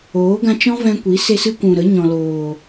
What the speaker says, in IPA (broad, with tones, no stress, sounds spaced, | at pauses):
oː˨˦ ɡ ã˧ t͡ʃ ɔ̃˦ v ɛ̃˧ kʷ i˨˦ s e˦ s ɨ˦ kʷ ũ˨ ɾ ə˨˦ ɲ ɔ̃˨ l oː˨